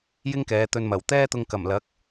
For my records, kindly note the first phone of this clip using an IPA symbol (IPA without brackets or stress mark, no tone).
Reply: j